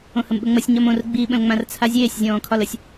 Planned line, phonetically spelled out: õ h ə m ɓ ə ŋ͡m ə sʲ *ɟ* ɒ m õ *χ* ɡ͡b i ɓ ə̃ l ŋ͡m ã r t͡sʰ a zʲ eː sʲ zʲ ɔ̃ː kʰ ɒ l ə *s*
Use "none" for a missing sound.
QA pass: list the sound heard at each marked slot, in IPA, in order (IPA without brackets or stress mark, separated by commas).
ɲ, r, sʲ